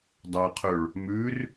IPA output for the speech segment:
dˤɐqʰɵɭ | mʉr

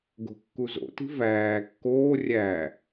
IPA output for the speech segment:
ɡo̤kːuzo̰ti̤ væː kːoː rʲæ

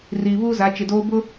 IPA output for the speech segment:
riː˨βuː˦za˨˦ t͡ʃɪ˨doː˦ bʊ˦

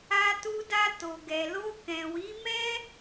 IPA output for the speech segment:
a˧tu˧da˧ to˨ɡɛ˨lo˧ kɛ̃˨wi˨˦ mɛ˦

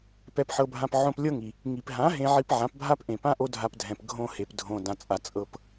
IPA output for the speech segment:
pɛ˧pħɤ˧bʱã˧p ʕõ˧plʲɤ˦ŋi˨ | ŋi˨pɦã˨˦ ɦẽ˧ʕi˧p ʕã˨˦pbʱa˦pʔẽ˨pã˦ ʔo˦dʱa˧pdʱɛ̃˨p ɡʱõ˧ he˨pdʱõ˨ dã˨t͡sʼa˨ t͡sʼɤ˧p

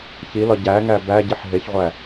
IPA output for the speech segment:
çilɒ ɟæŋæ bæɟiħ ɦeçʁʷæ

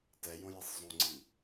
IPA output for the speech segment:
tɛjõjisˤ zˤõŋ͡ǀi

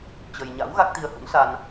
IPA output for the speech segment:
t͡ɕə˧j ɲa̰˧˥w ɣa˦˥k̚t̪i˧ə̯hṵ˧˥nsa˧n

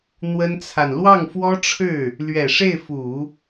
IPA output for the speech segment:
n̪wə˥nt͡sʰa˨n lwɑ˥˩ŋfwɔ˥ʈ͡ʂʰɻ̩˥˩ | lɥɛ˨˩ʂe˥˩ɪ̯fu˨˩˦

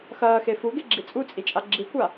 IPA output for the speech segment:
xɐːxe fuɡeɡ͡ǁi t͡sʼut͡sʼit͡ʃʼa ɡ͡ǁikʷa

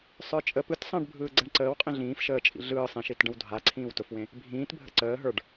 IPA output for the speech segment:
sˤə˞t͡ʃʼə pɯtsˤə̃ːɖbʱɯː ɡ͡ǀɛɳǀəːw qʼĩɮĩːf ʃəː t͡ʃʼḭɮɯː sˤẽʃit ɖə̃wdʱa ǀʰĩːwtʊfwẽ | bʱĩːtbʱə̰ ǀəː ɦə˞ɖ

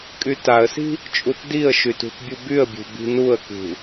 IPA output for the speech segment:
kʼytaə̯si̤ | t͡ʃʼutdiə̯ʃy tṳtbʲubyə̯bʲṳ bi̤nuə̯kṳ

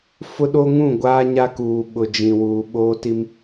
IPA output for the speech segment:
fʊ˦ɗo˦ŋũ˦˨ɡʷaː˦ ɲa˦kuː˨ ɓʊ˨d͡ʒĩ˨wuː˨ ɓoː˦ti˦m

